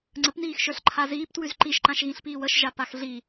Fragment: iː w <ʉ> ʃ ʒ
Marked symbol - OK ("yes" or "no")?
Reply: no